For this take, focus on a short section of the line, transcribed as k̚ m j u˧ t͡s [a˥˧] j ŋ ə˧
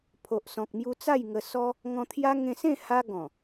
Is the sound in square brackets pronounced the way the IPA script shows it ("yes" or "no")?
yes